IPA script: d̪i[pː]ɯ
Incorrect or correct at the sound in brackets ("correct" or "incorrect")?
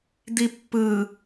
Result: correct